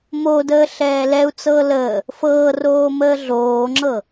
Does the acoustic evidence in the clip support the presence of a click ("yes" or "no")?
yes